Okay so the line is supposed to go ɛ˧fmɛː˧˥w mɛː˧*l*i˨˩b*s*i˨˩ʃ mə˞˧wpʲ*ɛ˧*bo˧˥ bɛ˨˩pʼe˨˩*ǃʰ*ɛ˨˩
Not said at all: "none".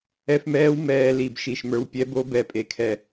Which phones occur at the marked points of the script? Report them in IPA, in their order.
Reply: l, ʃ, ɛ˧˥, kʰ

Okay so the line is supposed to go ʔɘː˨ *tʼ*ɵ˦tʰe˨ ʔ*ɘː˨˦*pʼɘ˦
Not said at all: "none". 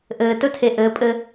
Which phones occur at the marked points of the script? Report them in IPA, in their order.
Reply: t, ɘː˨˦

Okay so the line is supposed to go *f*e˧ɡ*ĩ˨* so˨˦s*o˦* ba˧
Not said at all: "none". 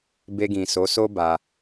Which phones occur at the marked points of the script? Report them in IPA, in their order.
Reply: b, ĩ˨, o˦

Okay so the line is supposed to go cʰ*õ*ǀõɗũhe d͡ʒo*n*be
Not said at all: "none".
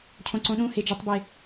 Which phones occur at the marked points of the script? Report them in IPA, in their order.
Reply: õ, tˤ

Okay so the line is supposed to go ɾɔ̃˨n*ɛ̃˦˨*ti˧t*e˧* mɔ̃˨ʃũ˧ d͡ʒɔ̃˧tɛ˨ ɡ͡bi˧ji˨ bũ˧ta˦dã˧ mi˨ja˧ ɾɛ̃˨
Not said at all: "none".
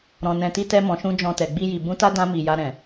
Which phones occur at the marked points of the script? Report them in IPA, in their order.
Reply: ɛ̃˨, ɛ˧

